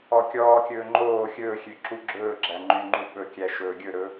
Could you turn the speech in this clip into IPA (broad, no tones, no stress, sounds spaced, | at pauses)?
ɔ kʲ ɔː kʲ ɵː ŋ͡ǃ oː xʲ ɵː xʲ ø ǁ u ɡ͡ǁ ɵː ɡ͡ǁ æ ŋ͡ǃ y ŋ͡ǃ u ɓ ɵ kʲ æ ʃ ɵː ɡʲ ɵ ɾ ɵ